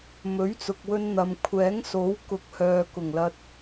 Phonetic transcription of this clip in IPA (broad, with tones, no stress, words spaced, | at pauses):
mɵ˨˥ɥt͡sʊ˨k̚wɵ˧n n̪ɐ˨mkʷʰɛː˨˥ŋso˨˥wkʊ˨˥k̚ hœː˨kʊ˨˩ŋlɐ˧t̚